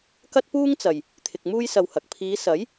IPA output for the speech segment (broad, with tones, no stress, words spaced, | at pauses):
kɐ˥t̚puː˥ŋt͡sɐ˨j | t̪ʰɪ˧k̚muː˥jsɐ˧whɐ˨k̚ pʰiː˨˧sɐ˨˥j